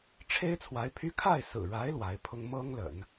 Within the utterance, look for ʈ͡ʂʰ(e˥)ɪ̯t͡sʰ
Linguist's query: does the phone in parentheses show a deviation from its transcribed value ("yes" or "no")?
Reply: no